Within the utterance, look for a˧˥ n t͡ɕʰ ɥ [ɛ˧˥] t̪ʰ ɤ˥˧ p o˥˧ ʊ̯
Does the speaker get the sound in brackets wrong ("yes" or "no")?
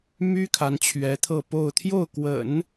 no